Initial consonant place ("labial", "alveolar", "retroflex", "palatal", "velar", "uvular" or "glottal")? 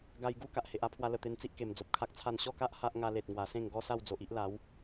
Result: velar